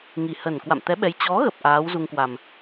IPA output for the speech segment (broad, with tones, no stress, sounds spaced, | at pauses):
ŋ i˨˩ h ə˨˩ n k w a̰˧˨ m t̪ ɛ˨˦ ɓ ɛ˨˦ j t͡ɕ ɔ˨˦ ɣ ə˨˩ p̚ ʔ aː˨˦ w z u˧ ŋ k w a˨˩ m